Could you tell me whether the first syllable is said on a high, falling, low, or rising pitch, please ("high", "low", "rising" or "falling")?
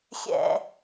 low